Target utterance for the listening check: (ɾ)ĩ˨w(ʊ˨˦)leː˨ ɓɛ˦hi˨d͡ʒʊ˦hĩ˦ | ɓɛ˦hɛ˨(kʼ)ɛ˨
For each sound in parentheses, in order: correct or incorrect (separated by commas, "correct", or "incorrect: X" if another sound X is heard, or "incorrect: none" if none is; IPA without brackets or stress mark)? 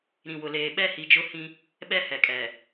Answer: correct, incorrect: ʊ˨, correct